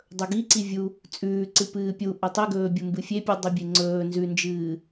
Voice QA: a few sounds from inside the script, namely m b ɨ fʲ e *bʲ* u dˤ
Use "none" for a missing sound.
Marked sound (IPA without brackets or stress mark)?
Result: pʲ